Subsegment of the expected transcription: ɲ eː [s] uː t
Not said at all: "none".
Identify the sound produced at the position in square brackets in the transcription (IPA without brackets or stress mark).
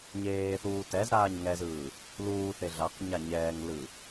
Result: θ